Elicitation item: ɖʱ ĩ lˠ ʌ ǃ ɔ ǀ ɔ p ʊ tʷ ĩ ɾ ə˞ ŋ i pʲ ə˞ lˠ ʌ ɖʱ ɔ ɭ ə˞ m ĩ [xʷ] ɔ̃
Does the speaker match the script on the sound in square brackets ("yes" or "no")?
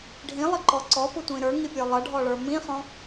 no